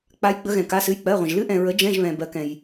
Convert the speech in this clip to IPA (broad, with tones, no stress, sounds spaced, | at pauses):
k͡p a˦˥ j ɡ͡b ə˦˥ ɣ ɛ̃˨ k a˧˥˧ s ɨ˧˥˧ j k͡p ɜ˧˥˧ ʁʷ ə̃˨ ʒ l ɨ˦˥ ʔ ɛ̃˨ ɹ ə˨˥ d͡ʒ ɛ̃˧˥˧ ʒ β ɛ̃˨ b ɜ˨˥ k ɛ̃˨ j